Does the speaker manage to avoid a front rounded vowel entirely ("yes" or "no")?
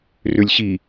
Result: no